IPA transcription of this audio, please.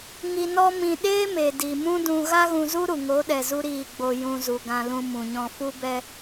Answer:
ŋ i˧ n ɔ˦ m ĩ˧ ɗ eː˦ m e˨ d i˨ m ũ˦ d ũ˧ ɣ a˦ ɣ ũ˧ z u˦ ɾ u˨ ŋ o˨˦ ɗ ɛ˨ z u˧ ɾ iː˦˨ ɡ͡b o˧ j ũ˧ z u˨ ɡ ã˧ l ũ˧ m ũ˨ ɲ ɔ̃˧ f u˦ b ɛ˧

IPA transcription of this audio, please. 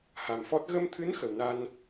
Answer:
h a˨˩ m f ɔ˦˥ t̚ ɣ ə˧ m t̪ʰ ɨ˧˥ n x ə˨˩ w n a˧ n

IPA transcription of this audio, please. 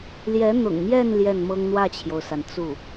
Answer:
l j ɛ˧˥ n̪ ʊ̰˨˩ ŋ m j ɛ˥˧ n l j ɛ˥˩ n m ɤ˥ ŋ n̪ w ä˥˩ t͡ɕʰ j o˩ ʊ̯ s a˩ n t͡s u˥˩

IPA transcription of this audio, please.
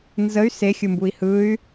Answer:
n z ə y̯ s e xʲ ɯ m b u i̯ h ɯ y̯

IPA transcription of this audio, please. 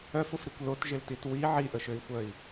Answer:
œ f ʊ f ɾ i kʷ l o t ʒ ɪ l t i t w i ʕ i ʔ ə ʃ ø i̯ xʷ œ i̯

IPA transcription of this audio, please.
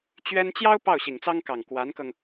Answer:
t͡ɕ ɥ ɛ˥ n t͡ɕ j ɑ˥ ʊ̯ p ɑ˥˩ ʊ̯ ɕ i˨˩ ŋ t͡s ɑ˥ ŋ k ɑ˨˩ ŋ k w a˧˥ n k ɤ˧ ŋ

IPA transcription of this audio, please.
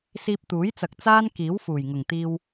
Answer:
s iː˧ p̚ t̪ uː˨˥ j t͡s ɐ˨ k̚ t͡s aː˥ n k iː˨˥ w f uː˨˩ j ŋ ʊ˨˩ ŋ t̪ iː˧ w

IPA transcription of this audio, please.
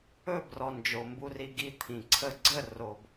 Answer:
ɵ˦˨ b r ɔ˨ n d͡ʒ o˨ m b u˧ r i˧ ɡ i˧ t̪ʰ ĩ˨ ǀʰ ə˦˨ ɡ͡ǀ ə˦˨ r o˧ b

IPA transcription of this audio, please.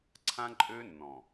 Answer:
ǀʰ ã˦ ǃʼ ø˦ nː ɔ̃˨

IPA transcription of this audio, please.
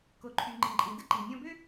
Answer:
k o˩ ǃʰ y˩ ŋ͡ǃ ĩ˩ ǃʼ ĩ˩ d ə˥ ǃ i˩ nʲ ɔ̃˧ b ø˥

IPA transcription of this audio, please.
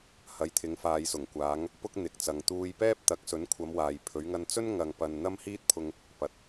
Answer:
h ɐ˨˧ j t̪ʰ ɪ˨˧ ŋ f aː˨ j s ʊ˨˩ ŋ kʷ aː˨˧ ŋ | p ʊ˥ k̚ n̪ ɪ˨ k̚ t͡s ɐ˨ ŋ t̪ uː˧ j p ɛː˥ p̚ t̪ ɐ˨˥ k̚ s ɵ˨˥ n kʷʰ ɐ˨˧ m w aː˨ j pʰ ɵ˨˧ ɥ ŋ ɐ˧ n t͡s ɵ˥ n ŋ ɐ˨ ŋ p ɐ˨ n n̪ ɐ˥ m h iː˥ t̚ pʰ ʊ˧ ŋ | p ɐ˨ t̚

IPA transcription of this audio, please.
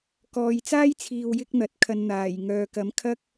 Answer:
k ɔː˨ j t͡s aː˥ j t͡sʰ iː˨ w j ɪ˥ k̚ n̪ ɐ˨˥ t̚ kʰ ɐ˧ n n̪ aː˨˩ j ŋ œː˨ k ɐ˨˥ m kʰ ɐ˥ k̚

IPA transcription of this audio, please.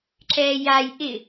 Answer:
ǁ ɛː j a j ʔ ɪ

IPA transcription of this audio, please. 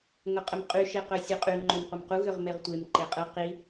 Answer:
ŋ ʊ qʼ ə m qʼ y ʃ e q œ sʲ ʊ qʼ y ŋ͡ǃ ø m qʷ ə m q u ɣ ʏ ʁ m e ʁ tʷ e m ǃ e qʼ ə q i

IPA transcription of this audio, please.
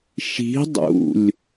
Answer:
ʃ i̤ dˤ ṵ lʲ

